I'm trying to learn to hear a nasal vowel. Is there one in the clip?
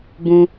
yes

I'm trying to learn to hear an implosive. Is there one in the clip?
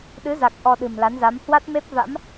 yes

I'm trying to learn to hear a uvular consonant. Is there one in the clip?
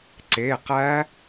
yes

